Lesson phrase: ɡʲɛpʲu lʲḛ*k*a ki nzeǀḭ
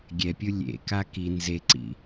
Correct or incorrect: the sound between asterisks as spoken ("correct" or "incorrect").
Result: correct